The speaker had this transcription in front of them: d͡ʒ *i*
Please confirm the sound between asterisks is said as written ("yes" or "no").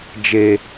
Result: no